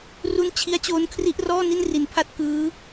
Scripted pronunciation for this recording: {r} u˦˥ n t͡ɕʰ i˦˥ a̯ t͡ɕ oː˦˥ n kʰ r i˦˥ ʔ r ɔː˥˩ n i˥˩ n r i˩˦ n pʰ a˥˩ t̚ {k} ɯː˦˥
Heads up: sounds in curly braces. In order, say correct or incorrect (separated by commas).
correct, correct